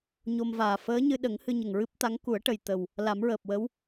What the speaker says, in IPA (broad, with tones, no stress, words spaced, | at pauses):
ɲo˧mvaː˨˩ fəː˧˥ɲɨ˧ ɗə˨˩˦ŋ hɨ˧ɲə˨˩ŋɹɨ˦˥p̚t̪a˧˥ŋ ku˨˩˦ə̯ʈə˨˩jt̪ə˨˩w | la˨˩˦mɹəː˨˩p̚wə˧˥w